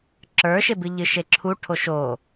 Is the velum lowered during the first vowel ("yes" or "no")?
no